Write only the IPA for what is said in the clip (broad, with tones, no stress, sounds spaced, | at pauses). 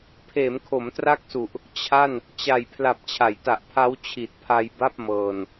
pʰ eː˩˦ m kʰ o˩˦ m t r a˦˥ k̚ s u˨˩ ʔ | t͡ɕʰ a˥˩ n | t͡ɕ a˨˩ j pʰ l a˨˩ p̚ t͡ɕʰ a˩˦ j t a˨˩ ʔ pʰ a˦˥ w t͡ɕʰ i˨˩ t̚ pʰ a˧ j b a˥˩ p̚ m ɤː˧ n